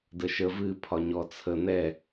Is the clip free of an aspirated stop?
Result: no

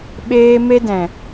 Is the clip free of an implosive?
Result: no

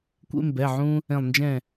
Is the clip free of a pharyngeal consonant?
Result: no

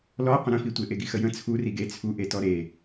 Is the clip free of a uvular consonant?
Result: no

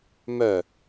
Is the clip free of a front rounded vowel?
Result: no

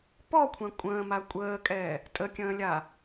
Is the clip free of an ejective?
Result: no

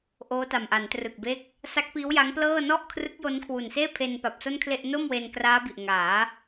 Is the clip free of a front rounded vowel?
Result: yes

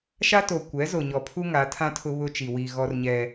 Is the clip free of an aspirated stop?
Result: no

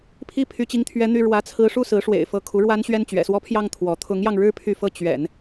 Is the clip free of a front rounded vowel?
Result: no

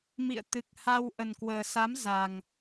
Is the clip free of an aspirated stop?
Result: yes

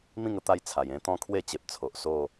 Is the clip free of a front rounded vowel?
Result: yes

